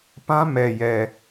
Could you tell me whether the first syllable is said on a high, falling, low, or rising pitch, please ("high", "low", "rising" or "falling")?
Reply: high